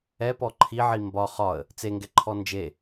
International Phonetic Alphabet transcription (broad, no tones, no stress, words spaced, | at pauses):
ɛpɔ ǃʰiʕi mbɒ χɒə̯ | t͡seŋɡɛǃʰɔ nd͡ʒe